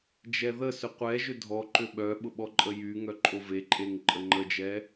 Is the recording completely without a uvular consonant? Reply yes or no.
no